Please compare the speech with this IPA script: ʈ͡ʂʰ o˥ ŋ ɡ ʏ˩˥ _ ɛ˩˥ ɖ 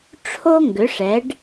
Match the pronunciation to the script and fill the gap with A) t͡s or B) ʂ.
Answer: B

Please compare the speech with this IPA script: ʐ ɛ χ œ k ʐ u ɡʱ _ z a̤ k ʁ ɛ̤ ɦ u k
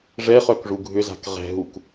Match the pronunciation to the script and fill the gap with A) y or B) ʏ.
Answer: B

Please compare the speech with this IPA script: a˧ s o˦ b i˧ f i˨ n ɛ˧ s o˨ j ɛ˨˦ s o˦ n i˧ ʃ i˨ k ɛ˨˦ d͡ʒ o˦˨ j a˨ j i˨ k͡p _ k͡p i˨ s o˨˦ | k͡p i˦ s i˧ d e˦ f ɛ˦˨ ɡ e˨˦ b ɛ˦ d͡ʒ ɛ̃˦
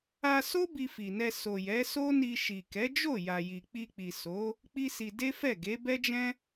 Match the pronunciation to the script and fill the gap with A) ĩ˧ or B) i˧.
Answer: B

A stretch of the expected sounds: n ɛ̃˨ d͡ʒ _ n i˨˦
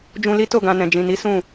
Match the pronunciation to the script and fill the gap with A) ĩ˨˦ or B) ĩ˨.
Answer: B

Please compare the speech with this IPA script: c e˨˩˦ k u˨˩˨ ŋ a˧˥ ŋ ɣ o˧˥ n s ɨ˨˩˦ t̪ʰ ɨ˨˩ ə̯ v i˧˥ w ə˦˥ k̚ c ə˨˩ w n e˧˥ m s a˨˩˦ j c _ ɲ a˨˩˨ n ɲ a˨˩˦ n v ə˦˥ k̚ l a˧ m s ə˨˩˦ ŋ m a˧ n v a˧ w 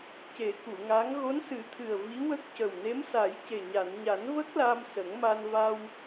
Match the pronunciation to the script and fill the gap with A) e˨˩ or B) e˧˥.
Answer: A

